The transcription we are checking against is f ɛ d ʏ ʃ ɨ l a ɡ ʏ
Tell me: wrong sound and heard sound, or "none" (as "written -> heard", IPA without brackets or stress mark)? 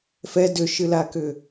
ɡ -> k